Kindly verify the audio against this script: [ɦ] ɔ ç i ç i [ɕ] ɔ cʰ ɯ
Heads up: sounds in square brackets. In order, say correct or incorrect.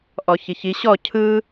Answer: incorrect: ʔ, correct

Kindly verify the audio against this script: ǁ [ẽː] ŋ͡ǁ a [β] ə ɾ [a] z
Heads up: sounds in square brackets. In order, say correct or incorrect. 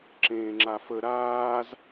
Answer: correct, incorrect: f, incorrect: aː

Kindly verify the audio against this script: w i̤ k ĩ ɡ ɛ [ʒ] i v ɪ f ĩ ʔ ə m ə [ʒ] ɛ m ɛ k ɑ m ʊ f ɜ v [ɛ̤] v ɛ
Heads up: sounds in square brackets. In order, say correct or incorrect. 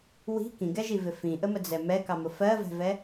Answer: correct, incorrect: d͡z, correct

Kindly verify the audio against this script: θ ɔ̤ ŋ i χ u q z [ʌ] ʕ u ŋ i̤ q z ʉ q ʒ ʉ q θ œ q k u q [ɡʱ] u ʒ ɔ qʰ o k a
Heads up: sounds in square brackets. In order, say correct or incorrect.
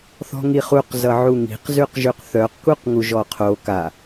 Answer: correct, incorrect: ŋ

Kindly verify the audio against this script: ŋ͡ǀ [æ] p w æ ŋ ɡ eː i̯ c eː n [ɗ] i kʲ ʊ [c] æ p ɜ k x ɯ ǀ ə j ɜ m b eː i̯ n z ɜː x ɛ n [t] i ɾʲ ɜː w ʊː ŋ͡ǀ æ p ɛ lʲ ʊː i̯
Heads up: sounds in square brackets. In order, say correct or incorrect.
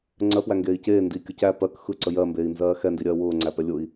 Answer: incorrect: ɜ, incorrect: d, correct, incorrect: d

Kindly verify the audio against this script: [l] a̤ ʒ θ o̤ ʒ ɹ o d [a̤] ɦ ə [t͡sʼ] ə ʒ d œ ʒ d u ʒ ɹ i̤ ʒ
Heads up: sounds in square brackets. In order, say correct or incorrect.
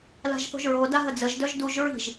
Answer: correct, incorrect: a, incorrect: d͡z

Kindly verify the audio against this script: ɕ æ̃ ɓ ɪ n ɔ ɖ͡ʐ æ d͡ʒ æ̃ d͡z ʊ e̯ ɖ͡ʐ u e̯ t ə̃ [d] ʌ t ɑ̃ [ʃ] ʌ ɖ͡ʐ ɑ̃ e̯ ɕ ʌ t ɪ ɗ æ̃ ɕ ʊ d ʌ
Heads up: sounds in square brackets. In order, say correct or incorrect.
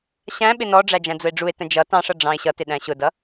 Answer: incorrect: d͡ʒ, incorrect: ʂ

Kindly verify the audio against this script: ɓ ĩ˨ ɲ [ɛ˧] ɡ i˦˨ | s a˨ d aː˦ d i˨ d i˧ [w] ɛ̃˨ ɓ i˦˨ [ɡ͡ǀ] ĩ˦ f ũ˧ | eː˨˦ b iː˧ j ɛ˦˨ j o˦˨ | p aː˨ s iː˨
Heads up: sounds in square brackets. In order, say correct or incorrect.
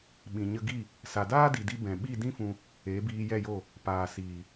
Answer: incorrect: ə˧, incorrect: b, incorrect: d

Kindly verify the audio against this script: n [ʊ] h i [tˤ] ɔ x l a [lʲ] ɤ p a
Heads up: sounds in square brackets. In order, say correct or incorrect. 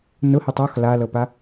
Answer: correct, correct, incorrect: l

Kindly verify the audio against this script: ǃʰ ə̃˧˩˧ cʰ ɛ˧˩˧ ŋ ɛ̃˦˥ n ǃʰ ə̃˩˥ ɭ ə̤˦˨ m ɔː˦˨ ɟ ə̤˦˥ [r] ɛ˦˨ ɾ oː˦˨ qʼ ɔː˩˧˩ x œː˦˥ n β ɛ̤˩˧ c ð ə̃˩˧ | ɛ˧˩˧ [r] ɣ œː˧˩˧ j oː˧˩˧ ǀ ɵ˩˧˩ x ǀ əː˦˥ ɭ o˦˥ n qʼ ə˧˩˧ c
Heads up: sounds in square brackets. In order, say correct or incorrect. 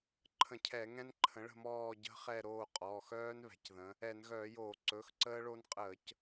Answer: incorrect: χ, incorrect: n

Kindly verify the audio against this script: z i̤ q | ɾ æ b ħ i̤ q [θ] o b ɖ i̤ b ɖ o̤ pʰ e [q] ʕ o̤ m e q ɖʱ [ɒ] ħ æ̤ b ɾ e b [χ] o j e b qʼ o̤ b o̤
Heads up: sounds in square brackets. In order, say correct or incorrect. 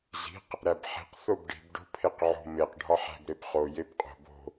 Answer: correct, correct, correct, correct

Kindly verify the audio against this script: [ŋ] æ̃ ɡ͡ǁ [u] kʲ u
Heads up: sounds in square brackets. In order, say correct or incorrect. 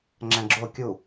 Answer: incorrect: ŋ͡ǁ, incorrect: o

